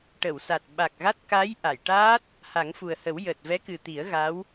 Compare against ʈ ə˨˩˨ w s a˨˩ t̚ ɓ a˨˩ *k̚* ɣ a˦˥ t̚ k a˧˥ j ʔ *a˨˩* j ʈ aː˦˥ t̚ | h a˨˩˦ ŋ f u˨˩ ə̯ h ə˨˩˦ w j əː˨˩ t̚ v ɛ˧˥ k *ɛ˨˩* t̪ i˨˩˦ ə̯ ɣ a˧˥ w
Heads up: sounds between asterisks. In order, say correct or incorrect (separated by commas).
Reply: correct, incorrect, incorrect